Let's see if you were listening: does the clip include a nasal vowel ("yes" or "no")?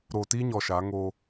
no